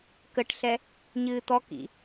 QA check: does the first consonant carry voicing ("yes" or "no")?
no